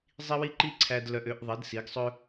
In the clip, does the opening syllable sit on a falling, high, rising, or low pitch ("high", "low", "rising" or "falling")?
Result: high